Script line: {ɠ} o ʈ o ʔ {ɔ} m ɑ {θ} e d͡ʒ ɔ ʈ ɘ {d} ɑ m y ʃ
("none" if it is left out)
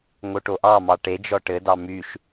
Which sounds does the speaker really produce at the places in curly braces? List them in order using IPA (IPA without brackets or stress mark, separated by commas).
ŋ, ɑ, ʈ, d